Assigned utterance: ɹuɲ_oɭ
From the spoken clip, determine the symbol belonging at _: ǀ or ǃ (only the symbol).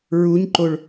ǃ